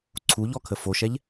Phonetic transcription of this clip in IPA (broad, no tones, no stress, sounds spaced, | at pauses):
ǀʰ u ʎ ɔ kʰ ə f o ʃ ɛ ʎ